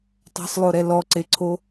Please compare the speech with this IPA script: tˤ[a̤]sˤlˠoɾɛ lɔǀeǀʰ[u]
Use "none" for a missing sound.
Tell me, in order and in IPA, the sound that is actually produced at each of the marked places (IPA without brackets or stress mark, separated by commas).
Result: a̤, o